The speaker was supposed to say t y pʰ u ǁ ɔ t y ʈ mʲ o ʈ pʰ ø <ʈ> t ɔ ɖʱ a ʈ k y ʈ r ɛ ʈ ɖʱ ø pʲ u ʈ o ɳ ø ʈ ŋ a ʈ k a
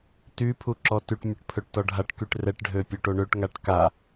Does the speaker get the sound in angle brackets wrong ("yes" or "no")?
no